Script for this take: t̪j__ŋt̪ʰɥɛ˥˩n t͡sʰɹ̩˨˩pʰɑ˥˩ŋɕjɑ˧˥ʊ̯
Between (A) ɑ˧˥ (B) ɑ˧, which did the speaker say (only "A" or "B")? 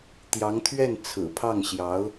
A